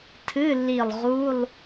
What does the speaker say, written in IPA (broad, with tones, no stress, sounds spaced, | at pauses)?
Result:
tʰ ɨ˧˥˧ lː i˧˩ lˠ ʁ u˧˥˧ lˠ